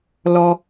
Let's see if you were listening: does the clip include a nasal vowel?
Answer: no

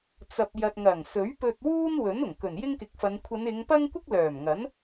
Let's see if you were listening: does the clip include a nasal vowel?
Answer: no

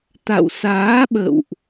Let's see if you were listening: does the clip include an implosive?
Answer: yes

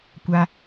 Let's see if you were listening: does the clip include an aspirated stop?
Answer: no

